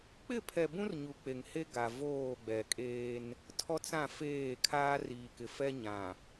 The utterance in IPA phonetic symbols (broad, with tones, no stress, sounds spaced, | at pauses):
k͡p ɪ˦˨ pʰ ɛ˨ b ũ˦ r ɲ u˨ k͡p e˨ ŋ h e˦ ɡ a˨ v oː˦˨ ɡ͡b ɛ˨ kʼ eː˦ n | tʰ ɔ˦ t͡s ã˦˨ f eː˦˨ kʰ aː˦ r iː˨ k ɪ˨ f ɛ˦ ɲ ã˨